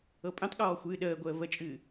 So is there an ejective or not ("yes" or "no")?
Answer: yes